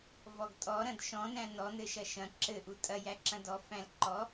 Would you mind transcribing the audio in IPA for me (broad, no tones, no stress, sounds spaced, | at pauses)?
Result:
v ɔ ɡ tʼ ɔ ɾ ɐ̃ d ʃ ɔ̃ n æ̃ n ɔ n ɘ ʃ ɐ ʃ ɐ̃ ǁ ɘ ʔ u tʼ ɐ j æ ǁ ɐ̃ d ɔ f æ̃ l ǃ ɔ